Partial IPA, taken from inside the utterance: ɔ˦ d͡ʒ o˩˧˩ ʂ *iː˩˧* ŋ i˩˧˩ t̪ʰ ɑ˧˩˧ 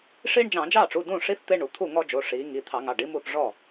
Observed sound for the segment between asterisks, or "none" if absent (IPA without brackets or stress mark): iː˩˧